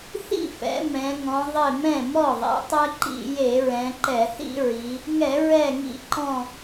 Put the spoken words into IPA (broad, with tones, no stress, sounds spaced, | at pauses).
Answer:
θ ḭ˥˩ f ɛ̰˩˧ m ɛ̃˩˧ ŋ ɔ̃˩˧ ðˤ ɪ˧˩ m ɛ̃˥˩ m ɔ˥˩ ðˤ ɛ̰˩˧ tˤ ɛ˦ ǃ ḭ˧˩˧ j e˧˩˧ ɹ ɛ̃˩˧ ǃ ɛ˧˩˧ θ ḭ˦ ɹ i˩˧ | ŋ ɛ˧˩˧ ɹ ɛ˧˩ ŋ ḭ˧˩˧ ǃ ɔ̃˧˩